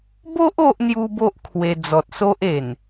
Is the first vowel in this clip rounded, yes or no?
yes